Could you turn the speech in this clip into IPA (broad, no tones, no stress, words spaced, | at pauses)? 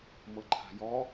mɤǃʰa̤jɔ